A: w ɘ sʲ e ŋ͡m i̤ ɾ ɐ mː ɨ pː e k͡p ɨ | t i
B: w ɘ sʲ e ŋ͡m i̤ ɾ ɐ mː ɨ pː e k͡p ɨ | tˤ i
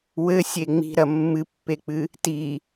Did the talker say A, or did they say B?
A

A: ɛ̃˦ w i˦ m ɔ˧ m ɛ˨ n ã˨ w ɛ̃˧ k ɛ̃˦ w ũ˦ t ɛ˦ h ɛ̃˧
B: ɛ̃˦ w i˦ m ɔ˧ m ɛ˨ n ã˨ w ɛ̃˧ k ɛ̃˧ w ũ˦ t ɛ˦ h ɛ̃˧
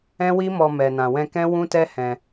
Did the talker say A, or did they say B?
A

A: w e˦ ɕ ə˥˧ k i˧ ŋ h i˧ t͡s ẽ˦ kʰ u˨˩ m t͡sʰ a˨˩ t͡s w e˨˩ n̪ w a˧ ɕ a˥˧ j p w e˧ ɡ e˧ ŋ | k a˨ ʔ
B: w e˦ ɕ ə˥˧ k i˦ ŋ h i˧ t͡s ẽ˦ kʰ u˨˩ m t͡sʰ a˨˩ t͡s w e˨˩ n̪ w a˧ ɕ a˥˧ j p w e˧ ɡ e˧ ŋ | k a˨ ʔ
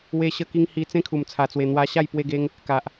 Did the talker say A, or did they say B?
B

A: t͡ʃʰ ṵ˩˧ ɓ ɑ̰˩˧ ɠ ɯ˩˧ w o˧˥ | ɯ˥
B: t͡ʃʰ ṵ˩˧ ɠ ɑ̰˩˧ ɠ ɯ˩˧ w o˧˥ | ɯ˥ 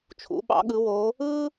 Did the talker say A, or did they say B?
A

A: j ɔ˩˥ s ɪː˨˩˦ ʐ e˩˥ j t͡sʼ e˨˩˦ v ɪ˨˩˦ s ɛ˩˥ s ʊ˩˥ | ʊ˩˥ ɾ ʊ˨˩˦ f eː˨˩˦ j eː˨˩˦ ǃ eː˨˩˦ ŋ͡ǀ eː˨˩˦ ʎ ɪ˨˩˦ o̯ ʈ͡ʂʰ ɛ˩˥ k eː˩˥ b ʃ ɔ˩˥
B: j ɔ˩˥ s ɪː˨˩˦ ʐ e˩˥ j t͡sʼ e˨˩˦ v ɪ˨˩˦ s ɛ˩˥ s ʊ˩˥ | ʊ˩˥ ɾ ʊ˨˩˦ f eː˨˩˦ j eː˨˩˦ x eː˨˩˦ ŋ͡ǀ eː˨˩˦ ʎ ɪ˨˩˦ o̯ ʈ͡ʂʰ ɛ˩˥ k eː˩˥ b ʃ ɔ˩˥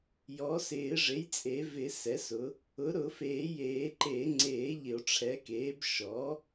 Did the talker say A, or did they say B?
A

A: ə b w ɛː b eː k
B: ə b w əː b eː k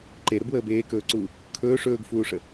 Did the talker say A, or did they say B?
B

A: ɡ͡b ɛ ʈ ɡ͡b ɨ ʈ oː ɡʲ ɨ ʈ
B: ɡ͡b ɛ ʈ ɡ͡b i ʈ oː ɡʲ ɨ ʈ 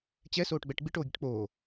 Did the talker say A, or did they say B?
B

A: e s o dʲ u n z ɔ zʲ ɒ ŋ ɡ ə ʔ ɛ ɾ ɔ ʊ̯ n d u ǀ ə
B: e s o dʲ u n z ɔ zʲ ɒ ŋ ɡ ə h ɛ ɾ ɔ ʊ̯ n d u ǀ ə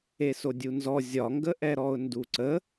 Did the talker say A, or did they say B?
A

